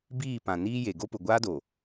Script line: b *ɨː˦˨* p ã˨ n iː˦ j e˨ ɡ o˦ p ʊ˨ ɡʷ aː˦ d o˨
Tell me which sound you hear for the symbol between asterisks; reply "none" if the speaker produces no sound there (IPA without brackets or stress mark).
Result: iː˦˨